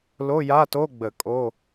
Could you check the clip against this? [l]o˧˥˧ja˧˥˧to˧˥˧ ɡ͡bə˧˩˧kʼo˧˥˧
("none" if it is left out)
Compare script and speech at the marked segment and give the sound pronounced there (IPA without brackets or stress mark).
l